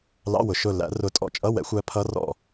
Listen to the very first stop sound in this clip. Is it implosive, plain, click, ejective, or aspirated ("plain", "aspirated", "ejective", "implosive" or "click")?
ejective